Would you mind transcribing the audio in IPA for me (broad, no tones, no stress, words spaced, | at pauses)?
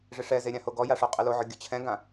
ʐɪʂɛze ɾʲãhoɡɔja ʂoqʼɪloʕʊ ɡʲʊt͡ɕʰɛ̃ɡã